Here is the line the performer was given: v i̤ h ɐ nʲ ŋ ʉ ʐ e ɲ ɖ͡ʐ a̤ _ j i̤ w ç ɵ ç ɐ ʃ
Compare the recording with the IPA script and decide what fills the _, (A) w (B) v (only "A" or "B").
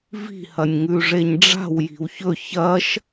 A